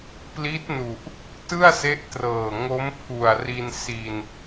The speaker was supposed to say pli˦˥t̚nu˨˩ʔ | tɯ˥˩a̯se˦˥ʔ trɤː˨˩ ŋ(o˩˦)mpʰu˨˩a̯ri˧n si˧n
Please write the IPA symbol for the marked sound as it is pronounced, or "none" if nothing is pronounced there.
o˦˥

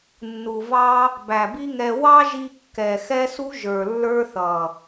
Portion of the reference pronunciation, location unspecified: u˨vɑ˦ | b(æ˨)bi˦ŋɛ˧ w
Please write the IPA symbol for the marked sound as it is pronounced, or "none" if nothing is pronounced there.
æ˨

